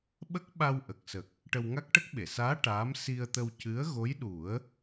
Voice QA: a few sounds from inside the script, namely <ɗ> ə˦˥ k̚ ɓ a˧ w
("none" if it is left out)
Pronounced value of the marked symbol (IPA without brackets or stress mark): ɓ